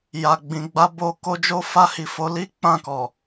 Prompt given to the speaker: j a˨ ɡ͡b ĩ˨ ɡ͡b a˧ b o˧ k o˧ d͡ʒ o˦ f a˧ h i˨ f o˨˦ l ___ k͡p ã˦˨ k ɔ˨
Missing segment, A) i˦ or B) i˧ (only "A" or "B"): A